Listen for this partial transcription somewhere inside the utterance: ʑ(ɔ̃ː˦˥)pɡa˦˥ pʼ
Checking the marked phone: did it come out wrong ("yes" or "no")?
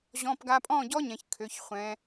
yes